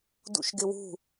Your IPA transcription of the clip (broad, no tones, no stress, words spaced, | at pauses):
dṵʃɡɪwṳ